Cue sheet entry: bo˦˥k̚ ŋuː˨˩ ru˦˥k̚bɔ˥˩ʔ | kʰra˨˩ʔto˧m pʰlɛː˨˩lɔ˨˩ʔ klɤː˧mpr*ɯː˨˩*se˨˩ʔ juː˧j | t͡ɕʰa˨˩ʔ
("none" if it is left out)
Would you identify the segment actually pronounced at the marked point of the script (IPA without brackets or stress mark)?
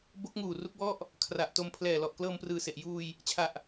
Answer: ɯː˨˩